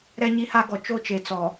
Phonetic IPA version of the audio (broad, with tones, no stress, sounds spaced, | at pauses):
ɾ ɛ˦ ɲ i˦ h a˦ ɡ ɔ˨ t͡ʃ o˦ t͡ʃ e˨ t͡s ɔ˨